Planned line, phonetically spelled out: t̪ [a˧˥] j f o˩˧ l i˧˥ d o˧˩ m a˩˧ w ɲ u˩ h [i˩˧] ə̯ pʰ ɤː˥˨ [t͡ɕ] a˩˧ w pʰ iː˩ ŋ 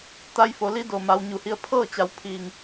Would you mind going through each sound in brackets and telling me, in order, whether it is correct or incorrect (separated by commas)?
correct, incorrect, correct